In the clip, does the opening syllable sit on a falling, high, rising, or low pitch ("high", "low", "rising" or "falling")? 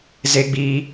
high